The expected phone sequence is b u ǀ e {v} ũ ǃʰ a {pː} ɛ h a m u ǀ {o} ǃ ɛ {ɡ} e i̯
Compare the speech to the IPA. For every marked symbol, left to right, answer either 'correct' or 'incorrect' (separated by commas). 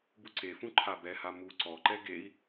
incorrect, incorrect, incorrect, correct